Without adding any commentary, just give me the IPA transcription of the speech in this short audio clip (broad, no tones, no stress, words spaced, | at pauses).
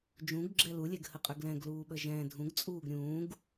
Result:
d͡ʒũɡɡ͡ǁɛ lulʲɛɡhəqʼʏ ɡlɛ̃ɡluːɓə ʒɛ̃ dʱũɡt͡sʼuːɡ ɾʲũːɡ